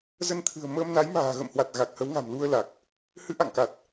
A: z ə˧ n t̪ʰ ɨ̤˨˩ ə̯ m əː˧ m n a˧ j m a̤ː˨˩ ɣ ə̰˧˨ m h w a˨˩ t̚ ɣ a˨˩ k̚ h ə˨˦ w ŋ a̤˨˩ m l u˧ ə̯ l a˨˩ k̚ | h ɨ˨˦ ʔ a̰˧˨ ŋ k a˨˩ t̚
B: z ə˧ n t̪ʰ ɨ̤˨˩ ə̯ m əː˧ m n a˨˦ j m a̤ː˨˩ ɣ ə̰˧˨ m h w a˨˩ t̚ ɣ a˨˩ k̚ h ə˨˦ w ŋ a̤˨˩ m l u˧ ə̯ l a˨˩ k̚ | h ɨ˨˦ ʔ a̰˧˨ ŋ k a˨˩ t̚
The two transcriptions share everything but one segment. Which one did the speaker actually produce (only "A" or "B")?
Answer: B